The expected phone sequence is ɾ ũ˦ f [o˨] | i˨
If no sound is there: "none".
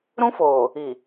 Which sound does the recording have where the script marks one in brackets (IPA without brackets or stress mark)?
oː˨